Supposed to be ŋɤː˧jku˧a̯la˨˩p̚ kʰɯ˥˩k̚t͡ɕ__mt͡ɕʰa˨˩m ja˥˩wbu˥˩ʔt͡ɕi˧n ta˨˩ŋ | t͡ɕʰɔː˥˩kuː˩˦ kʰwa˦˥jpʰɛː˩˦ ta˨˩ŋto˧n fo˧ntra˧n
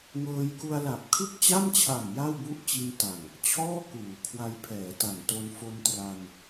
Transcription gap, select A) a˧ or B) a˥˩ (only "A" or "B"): B